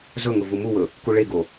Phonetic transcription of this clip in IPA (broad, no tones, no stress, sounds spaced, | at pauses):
z ɵ ŋ ʊ v u m u w ɵ | k u ɭ e ɡ o